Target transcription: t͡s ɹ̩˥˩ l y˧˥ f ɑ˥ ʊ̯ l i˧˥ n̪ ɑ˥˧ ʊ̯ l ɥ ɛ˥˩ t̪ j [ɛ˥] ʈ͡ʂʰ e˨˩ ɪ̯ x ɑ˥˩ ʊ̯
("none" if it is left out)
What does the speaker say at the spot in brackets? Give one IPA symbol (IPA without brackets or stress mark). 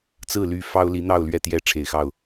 ɛ˥